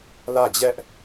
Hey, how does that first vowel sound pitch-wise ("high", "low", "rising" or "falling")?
falling